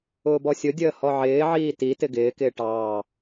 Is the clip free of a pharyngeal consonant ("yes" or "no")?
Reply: no